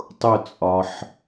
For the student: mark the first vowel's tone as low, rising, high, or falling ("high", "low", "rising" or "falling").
falling